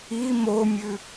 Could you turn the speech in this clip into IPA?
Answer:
i momʲʉ

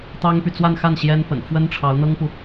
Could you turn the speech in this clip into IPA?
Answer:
t̪ɑ˥ŋpy˨ t͡swa˥˧nxa˥˩n ɕjɛ˥npə̰˨˩n fwə˥nʈ͡ʂʰɑ˧˥ʊ̯n̪ɤ˥ŋpu˨

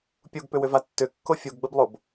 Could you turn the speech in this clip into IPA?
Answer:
pʲuɡpʏwʏva tːʏkːo fʲuɡɡ͡bəblˠob

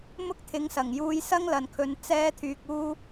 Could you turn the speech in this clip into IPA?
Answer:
mʊ˥k̚t̪ʰɪ˨˥ŋsɐ˨˩ŋ juː˧jsɐ˥ŋlɐ˨nkʰɵ˨˧n t͡sɛː˥t̪ʰyː˧k̚uː˥

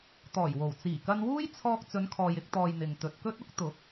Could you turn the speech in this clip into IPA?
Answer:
t̪ɔː˨˩jwo˨˩w t͡siː˨˩kɐ˧nwuː˥jt͡sʰɔː˧k̚ t͡sɵ˨˧nkʰɔː˨jɪ˧k̚t̪ɔː˨j n̪ɪ˨ŋ t̪ɵ˨t̚kɵ˥t̚ ʊ˥k̚ t̪ʊ˨˥k̚

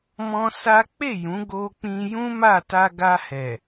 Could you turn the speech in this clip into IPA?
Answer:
mɔ̃˦sa˦ k͡pe˦˨jũ˨˦ ɡo˧k͡pĩ˧ jũ˦ma˦˨ ta˧ɡa˧hɛ˨

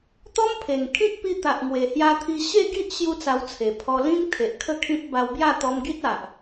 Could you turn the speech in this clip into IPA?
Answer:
t̪ɔ˦mpʰe˨˩ŋkʰĩ˦k̚pi˧ t̪a˨ʔŋwe˨˩hja˧t̪ʰi˧ ɕe˥˧ɡi˦ʔ ɕju˦t͡sa˧wt͡sʰe˨˩ pʰɔ˧ lĩ˦ŋ t̪ʰe˨ʔkʰə˥˧kʰĩ˦p̚ ba˧wbja˥˧ t̪ɔ˧mɡi˦t̚a˨ʔ

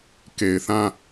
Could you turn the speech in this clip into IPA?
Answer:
ke˨ɪ̯θã˦

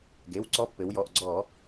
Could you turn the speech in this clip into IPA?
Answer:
ɡe˩˧˩wǀɔ˧˥pːɘ˩˧wjɔ˩˧˩ʔ ɡ͡ǀɔ˧˩˧

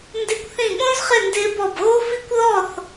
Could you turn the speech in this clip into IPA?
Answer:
ndɪ˥˧kʷθĩ˥˧ ɠõ˥zχɪ˥˧ ndɪː˥bɔ˥˧b ɣo˥fi˥kʷ ðɔ˥˧θ

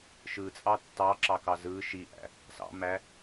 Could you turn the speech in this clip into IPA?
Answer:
ʃɯt͡sʼɑ tːɑǁɑkɑ zɯ ʃiʔæ̰ | sɑ̰mæ

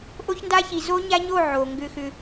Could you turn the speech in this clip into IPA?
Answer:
ʔo˦çnda˦çi˨ zo˦ɲa˦ɲo˦˨ ʕo˨ŋɡʏ˦xʏ˦

